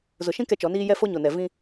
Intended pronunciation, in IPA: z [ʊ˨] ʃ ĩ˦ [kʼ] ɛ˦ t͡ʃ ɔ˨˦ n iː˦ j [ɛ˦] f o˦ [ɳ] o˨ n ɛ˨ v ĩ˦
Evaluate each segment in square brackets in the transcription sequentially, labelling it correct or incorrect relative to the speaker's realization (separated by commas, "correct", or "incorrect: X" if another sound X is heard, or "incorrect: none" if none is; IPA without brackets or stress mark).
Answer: correct, incorrect: k, correct, incorrect: ɲ